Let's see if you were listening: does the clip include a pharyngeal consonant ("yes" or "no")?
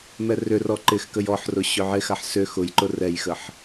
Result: yes